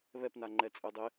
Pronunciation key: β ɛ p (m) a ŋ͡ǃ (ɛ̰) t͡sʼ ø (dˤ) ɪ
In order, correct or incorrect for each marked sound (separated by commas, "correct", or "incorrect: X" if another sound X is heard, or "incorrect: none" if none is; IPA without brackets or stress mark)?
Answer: incorrect: n, incorrect: ɛ, correct